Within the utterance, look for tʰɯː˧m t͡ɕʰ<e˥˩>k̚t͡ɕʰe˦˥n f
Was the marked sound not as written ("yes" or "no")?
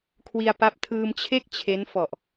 no